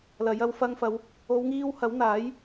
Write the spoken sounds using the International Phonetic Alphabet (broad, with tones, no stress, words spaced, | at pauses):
lɐ˨˥j ɐ˧wfɐ˧ŋfɐ˨˧w | o˨˧wŋiː˧whɐ˨˥wn̪aː˨˥j